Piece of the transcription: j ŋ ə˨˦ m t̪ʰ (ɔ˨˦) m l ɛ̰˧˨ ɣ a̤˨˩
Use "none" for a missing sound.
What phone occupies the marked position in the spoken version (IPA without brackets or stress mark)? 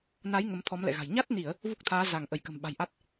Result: ɔ˨˦